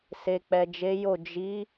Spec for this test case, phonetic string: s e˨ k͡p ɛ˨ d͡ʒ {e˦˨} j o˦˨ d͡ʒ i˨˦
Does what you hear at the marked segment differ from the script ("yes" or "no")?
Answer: yes